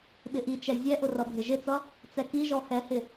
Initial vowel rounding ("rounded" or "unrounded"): unrounded